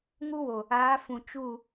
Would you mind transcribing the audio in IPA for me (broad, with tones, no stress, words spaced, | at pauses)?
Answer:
ŋu˦wo˨ | aː˨˦ fũ˨ t͡ʃu˦˨